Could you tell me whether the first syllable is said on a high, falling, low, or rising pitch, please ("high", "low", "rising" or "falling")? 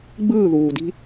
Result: falling